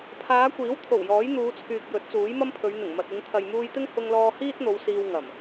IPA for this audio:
pʰ aː˨˧ kʷ iː˨˥ w t̪ʰ o˨˩ w j ɔː˨˥ j n̪ uː˨˧ t͡sʰ yː˨ k̚ j ɵ˨˥ t̚ t͡s uː˨˥ j m ɐ˥ m pʰ ɵ˨˧ ɥ n̪ ɪ˨˩ ŋ m ɐ˨ t̚ ɪ˨˧ ŋ t̪ʰ ɐ˨ j m uː˧ j t̪ ɪ˥ ŋ h ʊ˧ ŋ l ɔː˧ h iː˥ t̚ n̪ o˨˧ w s iː˧ w ŋ ɐ˨˩ m

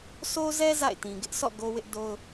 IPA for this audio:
sʰ o˦ z ɛ˦ z a̰˦˨ ɪ̯ t ĩ˨ ɡ ɪ˦ ʔ s ɔ̰˦˨ ɡ o˦ w ɪ˦ ʔ d o˦ ʊ̯

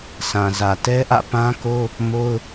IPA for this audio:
s ã˨ z ä˨ t ɛ˦ ʔ ä̰˦˨ p ã˦ k o˦ | m o˦ ʊ̯

